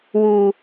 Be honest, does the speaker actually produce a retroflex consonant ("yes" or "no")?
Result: no